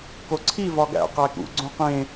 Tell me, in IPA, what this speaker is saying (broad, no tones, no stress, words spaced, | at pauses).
koǀʰi vɒɡæ̰ qækṵ ɡ͡ǀõqẽ